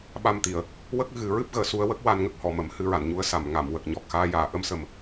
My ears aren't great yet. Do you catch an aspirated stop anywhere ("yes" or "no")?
no